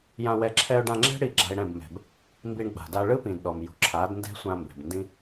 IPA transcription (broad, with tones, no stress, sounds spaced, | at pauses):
j ã˧ w ɛ˧ ǁʰ ɛ˧ ʊ̯ ɖ ã˧ ŋ͡ǁ ɛ̤˦ ɽ i˦˨ ɡ͡ǁ a̤˧ ɪ̯ ɽ ɛ̃˦˨ b m ɛ̤˧ b | m b i˧ ɳ ɡ͡b a̤˨ d a˧ ɭ ɯ˦ p ĩ˨ d ɗ ɔ˨ m j ṳ˨ ǁʰ a˨˦ d n d ɛ̤˦ sʷ ã˧ m b ɛ̤˨ b n d ĩ˦